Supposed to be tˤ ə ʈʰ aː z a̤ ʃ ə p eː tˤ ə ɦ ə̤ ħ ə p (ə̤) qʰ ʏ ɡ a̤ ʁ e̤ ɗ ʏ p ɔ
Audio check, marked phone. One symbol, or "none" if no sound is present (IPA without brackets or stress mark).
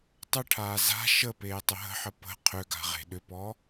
ə̤